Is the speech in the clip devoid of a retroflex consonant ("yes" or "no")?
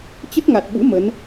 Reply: yes